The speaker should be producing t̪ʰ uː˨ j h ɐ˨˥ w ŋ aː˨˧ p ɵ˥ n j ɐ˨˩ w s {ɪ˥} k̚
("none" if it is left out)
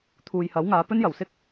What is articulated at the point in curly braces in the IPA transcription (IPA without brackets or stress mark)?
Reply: ɪ˥